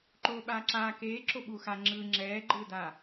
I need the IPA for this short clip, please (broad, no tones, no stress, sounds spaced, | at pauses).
ǃ oː ɓ aː ǁ aː k eː ǁ o ɓ u x a ŋ͡ǁ ɯː ŋ͡ǁ ɛː ɡ͡ǃ ɯː d a